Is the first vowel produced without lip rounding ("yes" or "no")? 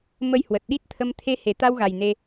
yes